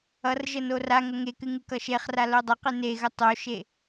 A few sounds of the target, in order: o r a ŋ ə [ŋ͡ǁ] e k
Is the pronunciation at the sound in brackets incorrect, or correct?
incorrect